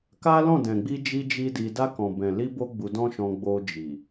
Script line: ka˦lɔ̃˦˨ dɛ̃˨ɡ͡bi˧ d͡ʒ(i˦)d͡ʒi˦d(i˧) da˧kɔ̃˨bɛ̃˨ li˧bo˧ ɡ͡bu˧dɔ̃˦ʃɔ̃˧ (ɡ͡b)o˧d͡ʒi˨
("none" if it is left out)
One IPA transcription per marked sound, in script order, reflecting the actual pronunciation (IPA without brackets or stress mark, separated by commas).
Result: i˦, i˧, ɡ͡b